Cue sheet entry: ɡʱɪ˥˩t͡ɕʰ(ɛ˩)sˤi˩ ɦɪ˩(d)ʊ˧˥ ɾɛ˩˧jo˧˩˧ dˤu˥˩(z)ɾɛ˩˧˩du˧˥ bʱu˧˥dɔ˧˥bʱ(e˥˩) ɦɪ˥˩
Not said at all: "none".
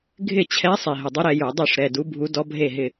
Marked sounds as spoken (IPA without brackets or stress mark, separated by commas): ɛ˧˥, dˤ, ʂ, e˥˩